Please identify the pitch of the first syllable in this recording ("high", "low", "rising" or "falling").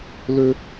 high